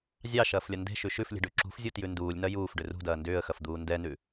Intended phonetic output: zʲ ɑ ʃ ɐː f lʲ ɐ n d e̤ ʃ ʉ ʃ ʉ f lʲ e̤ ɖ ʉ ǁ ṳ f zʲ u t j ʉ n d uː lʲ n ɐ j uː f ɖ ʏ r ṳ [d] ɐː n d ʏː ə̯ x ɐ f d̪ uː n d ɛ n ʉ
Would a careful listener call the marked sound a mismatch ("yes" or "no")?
no